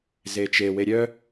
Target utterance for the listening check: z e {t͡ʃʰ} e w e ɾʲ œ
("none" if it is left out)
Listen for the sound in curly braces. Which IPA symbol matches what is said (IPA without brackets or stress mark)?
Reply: t͡ʃ